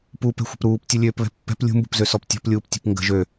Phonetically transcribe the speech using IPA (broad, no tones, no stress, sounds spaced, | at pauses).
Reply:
p u p ɛ̤ xʷ ə̤ p ɾ uː p tʲ u lʲ øː p β ɛ̤ pː ɛ̤ p lʲ ṳ m b ṳ p z ø s ɔ p tʲ ɔ̤ p lʲ uː p tʲ ṳ p ŋ ɡ ə̤ ʒ ø